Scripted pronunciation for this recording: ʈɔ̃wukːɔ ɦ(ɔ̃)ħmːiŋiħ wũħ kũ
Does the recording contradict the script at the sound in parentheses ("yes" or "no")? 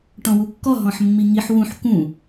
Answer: no